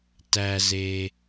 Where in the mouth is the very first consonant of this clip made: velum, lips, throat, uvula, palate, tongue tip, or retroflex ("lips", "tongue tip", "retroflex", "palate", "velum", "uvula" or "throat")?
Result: tongue tip